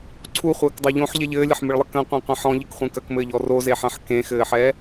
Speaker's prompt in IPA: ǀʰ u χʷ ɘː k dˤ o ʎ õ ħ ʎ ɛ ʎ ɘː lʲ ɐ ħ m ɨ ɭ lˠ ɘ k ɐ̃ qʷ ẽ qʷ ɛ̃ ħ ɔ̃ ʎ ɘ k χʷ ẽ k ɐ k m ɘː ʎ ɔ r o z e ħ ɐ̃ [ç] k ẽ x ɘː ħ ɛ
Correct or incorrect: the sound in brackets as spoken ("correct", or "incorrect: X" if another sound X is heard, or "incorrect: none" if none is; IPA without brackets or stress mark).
incorrect: ħ